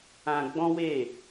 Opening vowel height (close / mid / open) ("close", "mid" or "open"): open